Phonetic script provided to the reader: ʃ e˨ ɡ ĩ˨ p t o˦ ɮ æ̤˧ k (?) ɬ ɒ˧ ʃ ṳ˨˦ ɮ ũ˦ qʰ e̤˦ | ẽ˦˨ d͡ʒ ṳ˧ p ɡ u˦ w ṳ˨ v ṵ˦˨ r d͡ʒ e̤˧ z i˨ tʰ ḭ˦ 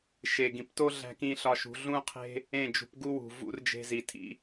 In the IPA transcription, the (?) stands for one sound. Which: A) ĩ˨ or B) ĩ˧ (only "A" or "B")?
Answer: B